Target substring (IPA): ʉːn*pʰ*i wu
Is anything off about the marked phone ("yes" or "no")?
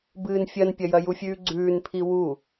no